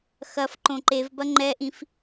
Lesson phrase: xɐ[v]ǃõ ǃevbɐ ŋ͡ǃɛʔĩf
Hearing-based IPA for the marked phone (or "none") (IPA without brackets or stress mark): f